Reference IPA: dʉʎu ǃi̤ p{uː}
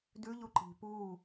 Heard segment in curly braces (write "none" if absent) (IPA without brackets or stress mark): uː